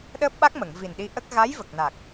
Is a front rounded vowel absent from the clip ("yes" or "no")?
yes